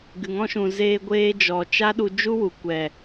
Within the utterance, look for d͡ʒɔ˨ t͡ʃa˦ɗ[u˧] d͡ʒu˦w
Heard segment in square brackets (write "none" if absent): u˧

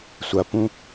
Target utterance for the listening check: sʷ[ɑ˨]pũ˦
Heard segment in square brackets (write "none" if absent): ɐ˨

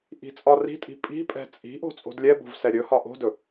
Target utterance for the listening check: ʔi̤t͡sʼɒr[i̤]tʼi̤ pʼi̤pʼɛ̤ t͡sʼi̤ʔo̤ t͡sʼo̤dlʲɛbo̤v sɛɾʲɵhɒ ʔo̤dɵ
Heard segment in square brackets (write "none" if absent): i̤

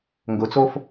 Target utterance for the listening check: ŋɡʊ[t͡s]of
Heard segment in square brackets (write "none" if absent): t͡s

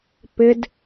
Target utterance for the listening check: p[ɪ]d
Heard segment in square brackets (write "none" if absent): ɪ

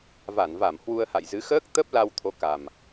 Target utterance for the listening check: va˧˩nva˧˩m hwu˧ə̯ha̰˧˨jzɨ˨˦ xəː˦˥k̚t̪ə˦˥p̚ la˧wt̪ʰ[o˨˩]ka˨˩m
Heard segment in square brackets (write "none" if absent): o˨˦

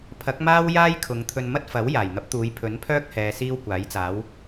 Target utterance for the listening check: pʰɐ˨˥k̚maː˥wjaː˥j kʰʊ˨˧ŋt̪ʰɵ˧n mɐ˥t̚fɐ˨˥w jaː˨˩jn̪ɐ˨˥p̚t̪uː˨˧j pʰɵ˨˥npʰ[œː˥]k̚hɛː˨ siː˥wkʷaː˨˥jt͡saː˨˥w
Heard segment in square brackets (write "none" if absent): œː˥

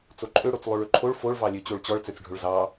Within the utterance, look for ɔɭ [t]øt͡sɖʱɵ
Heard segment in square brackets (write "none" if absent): t͡s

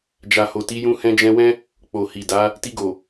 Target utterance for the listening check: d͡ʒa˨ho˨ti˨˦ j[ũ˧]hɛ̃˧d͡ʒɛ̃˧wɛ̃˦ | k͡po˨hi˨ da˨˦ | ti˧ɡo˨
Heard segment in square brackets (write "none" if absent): ũ˧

